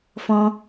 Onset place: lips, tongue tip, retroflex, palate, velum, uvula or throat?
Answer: lips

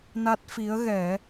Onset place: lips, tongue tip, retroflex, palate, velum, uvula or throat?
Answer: tongue tip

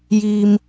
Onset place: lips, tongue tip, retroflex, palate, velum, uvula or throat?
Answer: palate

